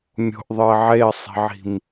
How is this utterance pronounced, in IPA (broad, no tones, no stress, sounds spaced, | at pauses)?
mʲ o̤ ʔ ðˤ ɯ ə̯ ʕ e ə̯ sˤ i̤ ʕ i̤ m